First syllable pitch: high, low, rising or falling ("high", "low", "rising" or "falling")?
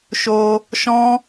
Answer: high